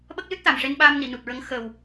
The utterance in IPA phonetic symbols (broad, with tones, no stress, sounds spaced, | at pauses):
ɓ ə˦˥ k̚ l ɨ˦˥ t̚ t̪ a˨˩ m ʂ e˧ n ɓ a˧ m n i˨˩˨ n u˨˩ t̚ ɹ ə˧˥ ŋ x əː˨˩ w